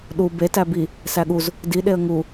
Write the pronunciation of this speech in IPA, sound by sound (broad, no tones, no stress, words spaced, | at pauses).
ɗu be tæbi | sæɠuz | di ɗeə̯ŋu